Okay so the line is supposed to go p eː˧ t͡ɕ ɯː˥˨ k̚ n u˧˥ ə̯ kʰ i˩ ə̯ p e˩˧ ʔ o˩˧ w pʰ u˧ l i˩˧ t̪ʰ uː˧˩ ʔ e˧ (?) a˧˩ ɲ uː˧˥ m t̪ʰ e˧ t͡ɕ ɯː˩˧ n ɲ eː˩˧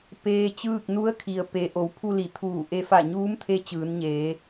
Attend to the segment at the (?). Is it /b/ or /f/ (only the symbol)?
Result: f